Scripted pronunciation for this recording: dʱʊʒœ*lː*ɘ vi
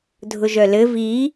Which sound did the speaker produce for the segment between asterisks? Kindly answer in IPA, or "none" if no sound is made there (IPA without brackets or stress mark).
l